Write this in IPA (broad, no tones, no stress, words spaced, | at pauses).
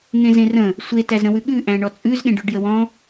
ŋẽzẽrə̃ | sʷe tæzɾə̃wʉɠʉ ʔæ̃ɳɔt͡sʼʉz ɠẽɖʉɖjəwɔ̃